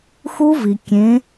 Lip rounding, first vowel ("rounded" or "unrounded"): rounded